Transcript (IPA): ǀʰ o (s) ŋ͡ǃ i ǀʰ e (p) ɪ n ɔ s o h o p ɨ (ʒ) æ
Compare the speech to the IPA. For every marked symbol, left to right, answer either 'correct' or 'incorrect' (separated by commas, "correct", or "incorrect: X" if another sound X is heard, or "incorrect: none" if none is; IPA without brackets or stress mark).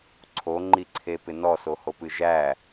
incorrect: none, correct, correct